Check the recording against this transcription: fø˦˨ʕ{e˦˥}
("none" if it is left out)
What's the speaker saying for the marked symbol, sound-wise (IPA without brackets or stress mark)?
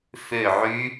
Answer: y˦˥